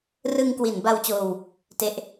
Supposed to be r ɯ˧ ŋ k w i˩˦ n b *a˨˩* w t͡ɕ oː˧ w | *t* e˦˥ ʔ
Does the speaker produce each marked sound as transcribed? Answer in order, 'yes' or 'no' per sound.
no, yes

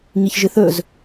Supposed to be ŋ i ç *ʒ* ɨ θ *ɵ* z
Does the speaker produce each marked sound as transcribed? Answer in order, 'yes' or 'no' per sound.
yes, yes

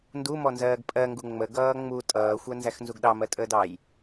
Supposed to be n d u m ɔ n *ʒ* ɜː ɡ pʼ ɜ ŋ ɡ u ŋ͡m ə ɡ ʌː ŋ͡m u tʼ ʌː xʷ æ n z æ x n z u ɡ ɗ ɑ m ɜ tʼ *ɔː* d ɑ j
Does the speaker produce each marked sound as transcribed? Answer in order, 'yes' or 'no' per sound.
no, no

